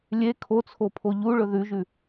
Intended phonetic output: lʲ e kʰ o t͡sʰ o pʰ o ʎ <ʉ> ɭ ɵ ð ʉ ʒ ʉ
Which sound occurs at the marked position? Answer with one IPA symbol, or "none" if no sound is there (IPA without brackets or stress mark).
u